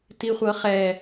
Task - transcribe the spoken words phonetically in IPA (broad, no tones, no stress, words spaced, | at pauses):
tiχʷɤχɛ